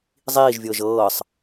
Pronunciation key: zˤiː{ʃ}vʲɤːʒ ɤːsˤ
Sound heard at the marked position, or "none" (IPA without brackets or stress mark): ʒ